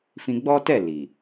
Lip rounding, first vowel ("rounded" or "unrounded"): unrounded